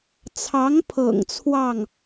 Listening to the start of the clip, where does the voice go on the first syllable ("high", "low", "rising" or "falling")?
rising